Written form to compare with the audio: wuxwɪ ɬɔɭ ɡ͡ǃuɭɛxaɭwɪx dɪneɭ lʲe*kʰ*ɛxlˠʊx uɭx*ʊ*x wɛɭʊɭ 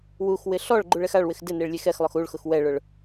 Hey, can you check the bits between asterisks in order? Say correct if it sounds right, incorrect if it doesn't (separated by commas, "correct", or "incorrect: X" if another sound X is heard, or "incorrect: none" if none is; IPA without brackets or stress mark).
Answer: incorrect: x, correct